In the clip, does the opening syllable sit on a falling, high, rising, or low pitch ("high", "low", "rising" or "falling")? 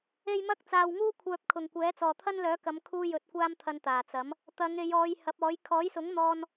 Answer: high